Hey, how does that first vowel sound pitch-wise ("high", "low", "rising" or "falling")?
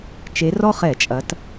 rising